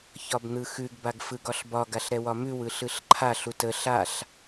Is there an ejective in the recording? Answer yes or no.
no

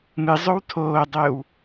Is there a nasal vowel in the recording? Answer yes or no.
no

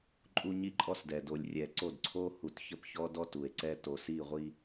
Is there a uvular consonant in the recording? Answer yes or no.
yes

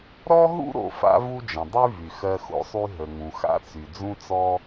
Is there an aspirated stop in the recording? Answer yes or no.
no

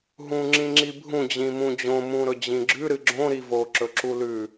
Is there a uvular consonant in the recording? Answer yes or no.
no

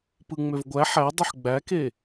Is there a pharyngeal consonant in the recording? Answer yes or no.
yes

